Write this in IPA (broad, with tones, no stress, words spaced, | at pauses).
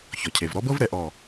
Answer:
çɔ˩cʰe˩v ɾɔ˧˥bɤ˥vɾɛ˧˩ ʔɔ˧˩